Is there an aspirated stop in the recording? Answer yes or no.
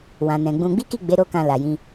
no